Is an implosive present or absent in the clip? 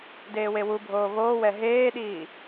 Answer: present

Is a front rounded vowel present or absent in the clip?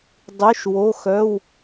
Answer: present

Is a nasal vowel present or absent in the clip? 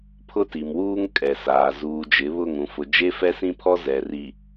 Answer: present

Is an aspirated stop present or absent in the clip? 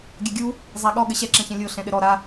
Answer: absent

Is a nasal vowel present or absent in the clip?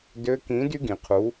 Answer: present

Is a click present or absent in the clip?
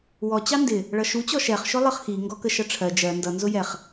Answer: absent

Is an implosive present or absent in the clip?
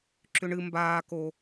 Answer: absent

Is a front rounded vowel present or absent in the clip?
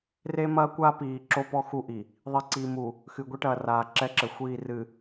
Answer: absent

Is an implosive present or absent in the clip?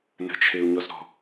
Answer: absent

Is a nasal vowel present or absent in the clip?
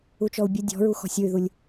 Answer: absent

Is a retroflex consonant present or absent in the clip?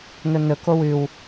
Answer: absent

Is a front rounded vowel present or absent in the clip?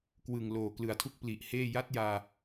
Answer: absent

